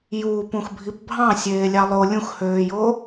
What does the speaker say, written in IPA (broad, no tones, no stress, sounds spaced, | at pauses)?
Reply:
j uː p ũ x bʱ i p bʱ ɑ̃ sʲ eː lʲ ɑ lˠ o lʲ ũ x h øː j o